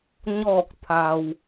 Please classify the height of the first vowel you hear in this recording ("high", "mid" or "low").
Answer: mid